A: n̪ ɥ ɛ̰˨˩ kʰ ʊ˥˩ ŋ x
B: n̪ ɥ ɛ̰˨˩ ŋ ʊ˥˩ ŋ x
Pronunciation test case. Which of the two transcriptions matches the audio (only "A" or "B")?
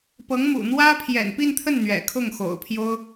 A